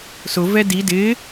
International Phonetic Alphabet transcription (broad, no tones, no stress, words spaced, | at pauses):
sʊvɛ di dɪ